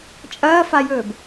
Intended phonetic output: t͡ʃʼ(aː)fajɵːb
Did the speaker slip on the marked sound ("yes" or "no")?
yes